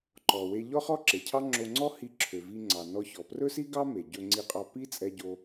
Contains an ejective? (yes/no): yes